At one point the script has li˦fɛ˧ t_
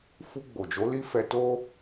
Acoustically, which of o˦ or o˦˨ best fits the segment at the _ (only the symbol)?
o˦